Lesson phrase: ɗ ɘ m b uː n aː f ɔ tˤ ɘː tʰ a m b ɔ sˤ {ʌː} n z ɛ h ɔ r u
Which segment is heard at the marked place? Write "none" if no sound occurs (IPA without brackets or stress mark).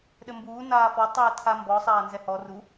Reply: aː